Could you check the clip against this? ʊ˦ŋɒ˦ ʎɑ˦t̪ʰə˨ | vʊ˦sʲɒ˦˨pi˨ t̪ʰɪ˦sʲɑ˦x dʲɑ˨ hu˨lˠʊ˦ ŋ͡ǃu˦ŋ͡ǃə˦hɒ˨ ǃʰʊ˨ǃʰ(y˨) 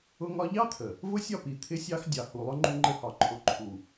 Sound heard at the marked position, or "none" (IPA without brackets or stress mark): u˨